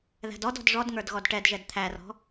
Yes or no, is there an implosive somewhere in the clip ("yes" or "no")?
no